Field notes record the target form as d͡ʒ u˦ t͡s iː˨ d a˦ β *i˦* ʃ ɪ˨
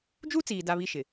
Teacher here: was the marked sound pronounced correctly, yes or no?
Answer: yes